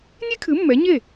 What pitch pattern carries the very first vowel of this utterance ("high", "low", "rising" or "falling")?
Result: high